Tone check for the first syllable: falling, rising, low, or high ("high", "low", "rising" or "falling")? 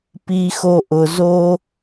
high